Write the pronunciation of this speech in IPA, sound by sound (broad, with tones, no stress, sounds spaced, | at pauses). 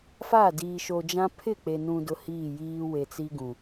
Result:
f a˦˨ d iː˨ ʃ o˨ d͡ʒ ã˦ pʰ ɪ˦˨ k͡p e˨ n ũ˨ d ʊ˨ h iː˦˨ j iː˦ w e˨ t͡s i˦ ɡ ũ˨